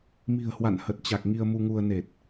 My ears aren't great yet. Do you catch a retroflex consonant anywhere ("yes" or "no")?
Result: no